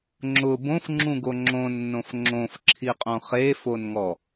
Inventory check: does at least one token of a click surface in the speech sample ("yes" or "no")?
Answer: yes